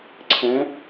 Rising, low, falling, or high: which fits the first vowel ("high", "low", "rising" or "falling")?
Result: rising